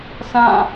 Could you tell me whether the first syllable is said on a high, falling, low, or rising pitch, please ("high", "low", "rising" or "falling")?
falling